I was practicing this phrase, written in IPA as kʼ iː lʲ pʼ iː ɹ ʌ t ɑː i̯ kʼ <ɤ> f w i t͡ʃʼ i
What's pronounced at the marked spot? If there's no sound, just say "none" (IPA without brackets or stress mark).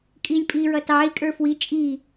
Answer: ə˞